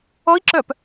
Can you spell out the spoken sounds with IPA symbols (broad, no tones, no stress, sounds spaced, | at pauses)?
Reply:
ɔ i̯ ǁ œ p